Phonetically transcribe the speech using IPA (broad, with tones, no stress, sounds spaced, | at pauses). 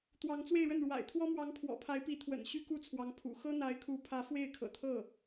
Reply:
t̪ w ɑ˧˥ ŋ t͡s w e˥˧ ɪ̯ ɻ ə˥˩ n ɻ w a̰˨˩ ɪ̯ t̪ʰ w ɔ˥ m w ɑ˧˥ ŋ pʰ w ɔ̰˨˩ pʰ a˧˥ ɪ̯ p i˧˥ t̪ʰ w ə̰˨˩ n ɕ y˥ k u˥˩ t͡sʰ w ɑ˧˥ ŋ pʰ ṵ˨˩ x ɤ˥ n̪ a˧˥ ɪ̯ kʰ u˧˥ pʰ ä˧˥ f w e˥˩ ɪ̯ kʰ ɤ̰˨˩ t̪ʰ ɤ˥˩